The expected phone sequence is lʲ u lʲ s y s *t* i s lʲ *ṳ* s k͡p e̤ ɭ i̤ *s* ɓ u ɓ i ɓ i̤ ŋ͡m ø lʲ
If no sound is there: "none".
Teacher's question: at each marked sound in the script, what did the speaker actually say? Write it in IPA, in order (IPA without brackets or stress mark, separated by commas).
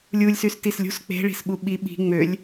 t, ṳ, s